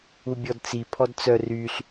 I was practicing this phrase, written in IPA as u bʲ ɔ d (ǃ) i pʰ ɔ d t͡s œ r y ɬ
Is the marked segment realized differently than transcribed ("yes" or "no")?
yes